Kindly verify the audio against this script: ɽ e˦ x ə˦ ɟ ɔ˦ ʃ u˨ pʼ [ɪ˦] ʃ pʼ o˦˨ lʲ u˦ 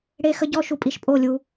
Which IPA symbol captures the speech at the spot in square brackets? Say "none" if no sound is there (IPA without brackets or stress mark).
i˦